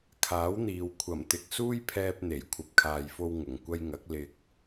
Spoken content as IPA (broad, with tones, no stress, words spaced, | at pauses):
kʰaː˨˥wn̪iː˨w kʷʰɐ˨˩mt̪ɪ˨k̚ suː˥jpʰɛː˧p̚ n̪e˨˩j kʷʰɐ˨p̚kʰaː˨jfo˧w ŋʊ˨˩ŋkʷɐ˧jŋɐ˨˥k̚ lɪ˧k̚